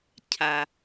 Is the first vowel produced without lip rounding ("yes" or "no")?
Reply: yes